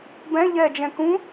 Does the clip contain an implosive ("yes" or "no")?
no